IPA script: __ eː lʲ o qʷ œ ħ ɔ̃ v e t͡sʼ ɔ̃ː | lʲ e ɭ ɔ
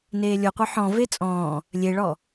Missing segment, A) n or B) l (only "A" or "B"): A